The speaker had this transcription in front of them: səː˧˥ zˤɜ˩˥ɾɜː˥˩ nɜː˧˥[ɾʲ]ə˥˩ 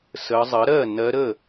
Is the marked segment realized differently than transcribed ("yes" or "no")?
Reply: yes